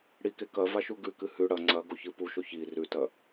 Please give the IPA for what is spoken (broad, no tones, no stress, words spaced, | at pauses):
ɽike kɐvaʃu ɡʉkɨ hʉ ɽɐ ŋ͡ǀɐɡoçɨ puʃoç i rʉtɐ